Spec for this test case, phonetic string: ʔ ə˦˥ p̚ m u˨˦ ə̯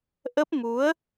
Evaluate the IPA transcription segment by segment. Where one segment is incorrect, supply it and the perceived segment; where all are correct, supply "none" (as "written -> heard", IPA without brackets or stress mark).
none